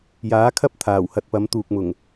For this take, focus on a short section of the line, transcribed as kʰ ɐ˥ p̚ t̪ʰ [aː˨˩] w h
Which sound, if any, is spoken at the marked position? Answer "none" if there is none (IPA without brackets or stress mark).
aː˨˩